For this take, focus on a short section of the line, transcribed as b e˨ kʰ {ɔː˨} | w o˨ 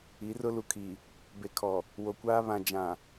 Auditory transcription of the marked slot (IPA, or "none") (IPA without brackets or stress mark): ɔ˨